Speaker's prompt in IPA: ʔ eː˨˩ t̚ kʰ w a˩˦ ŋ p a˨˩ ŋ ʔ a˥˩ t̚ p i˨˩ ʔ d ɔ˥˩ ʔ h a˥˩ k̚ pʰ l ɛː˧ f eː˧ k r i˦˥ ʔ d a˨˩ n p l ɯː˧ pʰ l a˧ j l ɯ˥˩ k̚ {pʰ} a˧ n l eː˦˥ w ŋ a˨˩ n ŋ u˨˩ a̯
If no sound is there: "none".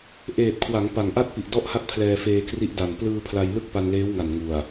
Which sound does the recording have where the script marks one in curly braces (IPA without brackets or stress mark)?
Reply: p